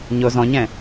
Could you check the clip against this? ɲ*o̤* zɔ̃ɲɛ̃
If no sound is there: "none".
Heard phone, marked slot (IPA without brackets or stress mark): o